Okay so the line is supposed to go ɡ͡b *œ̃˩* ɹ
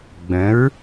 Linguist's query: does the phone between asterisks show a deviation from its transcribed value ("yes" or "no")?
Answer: yes